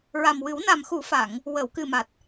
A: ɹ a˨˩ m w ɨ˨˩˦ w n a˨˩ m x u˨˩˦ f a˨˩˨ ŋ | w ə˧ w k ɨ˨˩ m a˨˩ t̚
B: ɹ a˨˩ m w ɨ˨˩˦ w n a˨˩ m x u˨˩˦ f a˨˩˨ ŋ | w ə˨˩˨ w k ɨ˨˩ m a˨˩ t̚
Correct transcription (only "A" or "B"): B